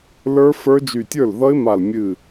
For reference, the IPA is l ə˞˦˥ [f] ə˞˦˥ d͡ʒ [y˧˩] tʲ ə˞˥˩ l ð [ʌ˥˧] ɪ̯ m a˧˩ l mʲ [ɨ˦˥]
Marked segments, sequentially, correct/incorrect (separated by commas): correct, correct, incorrect, incorrect